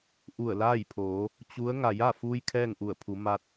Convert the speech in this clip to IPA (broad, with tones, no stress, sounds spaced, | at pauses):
ʔ u˧˩ ə̯ l aː˥˨ j pʰ oː˩˧ | t͡ɕ u˧˥ ə̯ ŋ a˩ j a˥˨ f uː˧ j kʰ ɛː˥˨ ŋ ʔ u˧˩ ə̯ pʰ u˩˧ m a˧ t̚